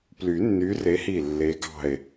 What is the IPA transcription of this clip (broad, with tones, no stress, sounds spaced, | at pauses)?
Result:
p l y˨˩˦ nː y˨˦ r e˨˦ h i˧˩ lː e˨˦ ɡ ɑ̤˧˩ e̯